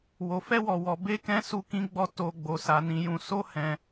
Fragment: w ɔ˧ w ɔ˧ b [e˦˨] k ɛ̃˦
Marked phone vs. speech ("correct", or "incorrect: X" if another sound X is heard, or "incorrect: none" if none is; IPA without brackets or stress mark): incorrect: e˦